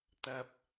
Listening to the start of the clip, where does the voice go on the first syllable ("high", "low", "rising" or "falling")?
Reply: high